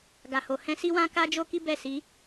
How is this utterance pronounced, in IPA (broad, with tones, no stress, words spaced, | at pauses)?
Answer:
ɡa˨ho˨ hɛ̃˧si˦wã˦ ka˦d͡ʒo˦ki˦ bɛ˦˨si˨˦